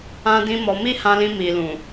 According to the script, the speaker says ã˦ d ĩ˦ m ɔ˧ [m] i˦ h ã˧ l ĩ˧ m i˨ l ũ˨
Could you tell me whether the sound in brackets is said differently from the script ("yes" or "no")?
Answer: no